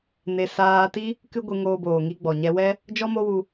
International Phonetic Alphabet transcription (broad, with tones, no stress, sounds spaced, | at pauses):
n e˧ s aː˧ t i˦ | k ɨ˦ ɡʷ ɨ˧ ŋ oː˧ b oː˨ ŋ i˧ ɡ͡b ɔ˨ ɲ ɛ˧ w ɛ˦ | d͡ʒ ɔ˦ m o˦ w u˧